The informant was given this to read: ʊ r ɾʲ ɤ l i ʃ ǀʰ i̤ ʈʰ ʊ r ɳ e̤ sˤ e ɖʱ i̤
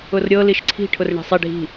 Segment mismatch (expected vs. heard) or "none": none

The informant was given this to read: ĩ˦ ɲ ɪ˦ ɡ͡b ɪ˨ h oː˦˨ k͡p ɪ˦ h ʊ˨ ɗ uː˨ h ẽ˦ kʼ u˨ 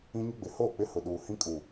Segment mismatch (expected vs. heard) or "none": ẽ˦ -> ĩ˦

